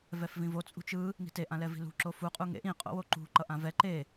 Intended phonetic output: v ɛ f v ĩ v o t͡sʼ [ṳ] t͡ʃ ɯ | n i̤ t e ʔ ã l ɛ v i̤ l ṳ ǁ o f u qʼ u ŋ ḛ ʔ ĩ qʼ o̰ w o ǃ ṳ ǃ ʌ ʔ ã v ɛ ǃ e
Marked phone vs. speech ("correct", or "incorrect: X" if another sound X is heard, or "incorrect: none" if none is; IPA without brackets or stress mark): correct